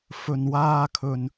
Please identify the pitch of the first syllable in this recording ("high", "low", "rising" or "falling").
low